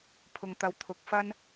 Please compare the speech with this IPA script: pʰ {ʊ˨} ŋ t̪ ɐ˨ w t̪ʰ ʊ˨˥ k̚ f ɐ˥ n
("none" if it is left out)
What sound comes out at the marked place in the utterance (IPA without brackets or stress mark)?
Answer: ʊ˨